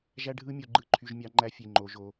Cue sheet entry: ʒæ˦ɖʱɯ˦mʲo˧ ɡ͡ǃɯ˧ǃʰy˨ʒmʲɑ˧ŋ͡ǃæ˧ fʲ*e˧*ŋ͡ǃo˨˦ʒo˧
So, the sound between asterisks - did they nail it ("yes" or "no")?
yes